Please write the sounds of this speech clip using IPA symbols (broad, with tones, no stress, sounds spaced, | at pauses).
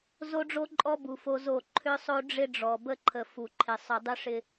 z o˦ ɖ͡ʐ o˦ ǃʼ ɔ˦ b u˨ f o˦ z o˦˨ ǃʰ ʏ˦ sˤ o˦ ɖ͡ʐ ɪ˦ ɖ͡ʐ ɔ˨ b ə˦ ǃʰ ə˨ f u˨ ǃʰ ɪ˨ sˤ ʏ˨ dˤ ʏ˦ ʂ ɪ˦